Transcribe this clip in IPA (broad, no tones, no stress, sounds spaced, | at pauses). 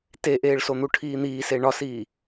t e ʔ eː ɭ s o n̪ u ʈʰ iː n̪ iː s e ɳ ɒ s iː